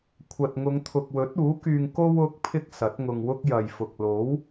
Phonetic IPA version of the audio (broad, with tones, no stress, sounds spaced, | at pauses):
kʷʰ ɐ˨ t̚ ŋ ʊ˨˧ ŋ t̪ʰ ʊ˨ k̚ w ɵ˨˥ t̚ uː˨˥ k yː˧ ŋ k o˧ w ʊ˨˥ k̚ pʰ ɪ˥ k̚ s ɐ˨˥ t̚ ŋ ʊ˧ ŋ w ʊ˥ k̚ j ɐ˨ j f ʊ˨ k̚ l o˨˥ w